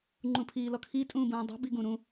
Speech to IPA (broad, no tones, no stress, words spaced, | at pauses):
ŋ͡ǃũpʰiːlɔkʰi tʼũːbũːdˤṳ biɡũɾũ